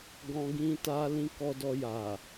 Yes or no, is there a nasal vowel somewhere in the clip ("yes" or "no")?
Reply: yes